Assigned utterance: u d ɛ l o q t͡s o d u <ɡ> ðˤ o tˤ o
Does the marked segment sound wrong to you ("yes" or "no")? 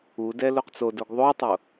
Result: no